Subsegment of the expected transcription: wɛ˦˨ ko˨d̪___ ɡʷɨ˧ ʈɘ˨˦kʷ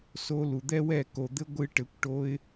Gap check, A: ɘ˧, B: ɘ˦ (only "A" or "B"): B